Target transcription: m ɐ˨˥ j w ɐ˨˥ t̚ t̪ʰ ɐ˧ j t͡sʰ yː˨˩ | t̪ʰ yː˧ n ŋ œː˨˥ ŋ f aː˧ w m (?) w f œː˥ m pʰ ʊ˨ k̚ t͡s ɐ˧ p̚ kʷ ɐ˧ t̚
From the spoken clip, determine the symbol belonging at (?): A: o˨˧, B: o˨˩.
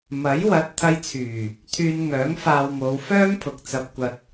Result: A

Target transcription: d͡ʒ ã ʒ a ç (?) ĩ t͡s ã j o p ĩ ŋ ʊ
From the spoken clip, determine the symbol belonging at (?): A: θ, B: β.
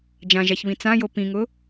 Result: B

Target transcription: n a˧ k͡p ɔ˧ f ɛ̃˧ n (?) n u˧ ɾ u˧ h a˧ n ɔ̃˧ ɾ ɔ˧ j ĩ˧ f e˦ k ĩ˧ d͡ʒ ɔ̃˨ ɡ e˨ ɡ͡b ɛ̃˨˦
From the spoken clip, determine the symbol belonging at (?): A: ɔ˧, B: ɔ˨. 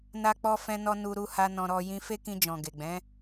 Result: A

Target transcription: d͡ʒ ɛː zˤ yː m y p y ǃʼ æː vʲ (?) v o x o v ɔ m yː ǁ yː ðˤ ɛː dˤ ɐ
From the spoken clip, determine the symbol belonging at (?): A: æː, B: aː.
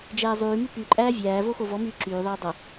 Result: A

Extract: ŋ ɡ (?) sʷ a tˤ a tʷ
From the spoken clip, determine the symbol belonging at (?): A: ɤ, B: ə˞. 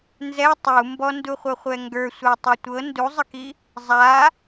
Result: B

